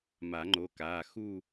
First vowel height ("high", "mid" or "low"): low